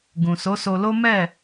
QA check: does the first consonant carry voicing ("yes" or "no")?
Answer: yes